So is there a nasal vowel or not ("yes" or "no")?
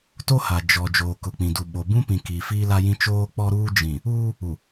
yes